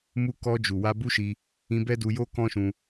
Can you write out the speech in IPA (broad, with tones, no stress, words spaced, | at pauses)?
mu˧kɔ˧d͡ʒu˨ wa˧bu˦ʃi˧ | ĩ˧ bɛ˦du˧jo˦ kɔ̃˦ʃũ˧